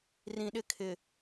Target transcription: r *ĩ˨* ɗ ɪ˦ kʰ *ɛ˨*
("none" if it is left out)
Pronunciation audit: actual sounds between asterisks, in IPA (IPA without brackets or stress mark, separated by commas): ĩ˨, ɪ˨